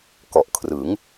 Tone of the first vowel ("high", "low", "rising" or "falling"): low